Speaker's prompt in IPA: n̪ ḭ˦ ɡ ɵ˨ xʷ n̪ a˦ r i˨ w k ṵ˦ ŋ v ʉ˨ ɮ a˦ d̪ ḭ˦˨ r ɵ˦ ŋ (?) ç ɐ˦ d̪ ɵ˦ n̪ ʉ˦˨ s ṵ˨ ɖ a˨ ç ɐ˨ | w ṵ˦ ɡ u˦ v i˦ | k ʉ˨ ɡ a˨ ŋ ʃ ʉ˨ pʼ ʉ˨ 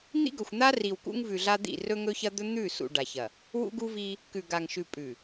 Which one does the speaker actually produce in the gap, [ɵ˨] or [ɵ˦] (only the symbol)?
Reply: ɵ˦